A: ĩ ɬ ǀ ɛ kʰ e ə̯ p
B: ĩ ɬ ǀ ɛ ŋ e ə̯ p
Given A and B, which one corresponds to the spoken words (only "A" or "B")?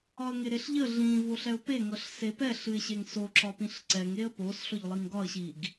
B